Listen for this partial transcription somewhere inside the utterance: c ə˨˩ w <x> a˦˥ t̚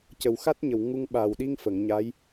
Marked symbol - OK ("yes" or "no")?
yes